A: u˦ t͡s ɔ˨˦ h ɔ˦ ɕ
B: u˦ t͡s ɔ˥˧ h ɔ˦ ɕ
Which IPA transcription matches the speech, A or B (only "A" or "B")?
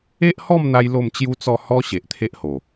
B